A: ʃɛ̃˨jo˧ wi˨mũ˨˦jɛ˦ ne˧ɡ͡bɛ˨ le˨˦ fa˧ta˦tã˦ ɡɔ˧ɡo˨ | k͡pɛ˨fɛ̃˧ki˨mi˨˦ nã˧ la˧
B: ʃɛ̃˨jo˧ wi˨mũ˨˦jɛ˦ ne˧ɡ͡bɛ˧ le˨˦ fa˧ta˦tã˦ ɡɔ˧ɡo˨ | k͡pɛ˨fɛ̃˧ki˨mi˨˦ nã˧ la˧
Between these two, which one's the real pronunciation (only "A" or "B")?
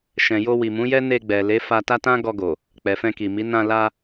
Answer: A